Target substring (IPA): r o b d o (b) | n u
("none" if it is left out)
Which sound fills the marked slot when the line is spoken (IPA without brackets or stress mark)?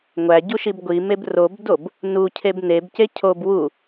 b